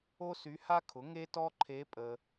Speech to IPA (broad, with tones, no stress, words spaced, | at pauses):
o˥sy˧˥ha˥kʰʊ˩˥ ŋe˥tɔ˥ǃʰe˧˥ pʼə˨